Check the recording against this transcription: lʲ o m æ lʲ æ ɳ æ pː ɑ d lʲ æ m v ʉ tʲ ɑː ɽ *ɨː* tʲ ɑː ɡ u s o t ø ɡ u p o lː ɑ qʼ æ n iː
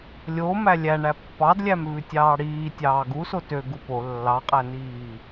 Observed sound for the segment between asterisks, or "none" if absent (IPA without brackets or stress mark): iː